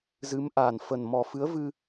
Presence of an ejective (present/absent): absent